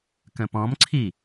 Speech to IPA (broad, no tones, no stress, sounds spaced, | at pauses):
k ə̃ p ɔ̃ m ǀʰ i